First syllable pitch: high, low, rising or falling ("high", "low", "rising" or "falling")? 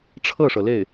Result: falling